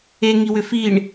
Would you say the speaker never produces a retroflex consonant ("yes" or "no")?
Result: no